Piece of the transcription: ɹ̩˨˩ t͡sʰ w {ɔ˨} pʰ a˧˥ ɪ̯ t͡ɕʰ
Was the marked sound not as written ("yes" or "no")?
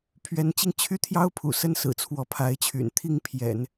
yes